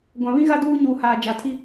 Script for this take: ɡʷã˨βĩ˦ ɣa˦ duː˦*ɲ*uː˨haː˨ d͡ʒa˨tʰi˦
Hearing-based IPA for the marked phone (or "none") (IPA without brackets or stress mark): ɲ